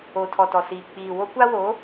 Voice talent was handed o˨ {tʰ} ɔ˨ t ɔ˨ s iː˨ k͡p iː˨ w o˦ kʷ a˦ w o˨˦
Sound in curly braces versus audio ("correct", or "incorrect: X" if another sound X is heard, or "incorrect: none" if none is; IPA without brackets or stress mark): correct